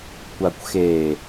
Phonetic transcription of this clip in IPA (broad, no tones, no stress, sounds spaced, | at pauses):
kʷ a kʷ x e